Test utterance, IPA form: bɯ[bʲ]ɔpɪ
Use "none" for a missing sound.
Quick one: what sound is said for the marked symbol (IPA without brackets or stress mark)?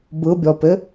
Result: bʲ